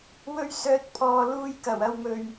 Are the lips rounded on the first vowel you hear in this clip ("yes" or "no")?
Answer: yes